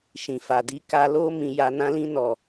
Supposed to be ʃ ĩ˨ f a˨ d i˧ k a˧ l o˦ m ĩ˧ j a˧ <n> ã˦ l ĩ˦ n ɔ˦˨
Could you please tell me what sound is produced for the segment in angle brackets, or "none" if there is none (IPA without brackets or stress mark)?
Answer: n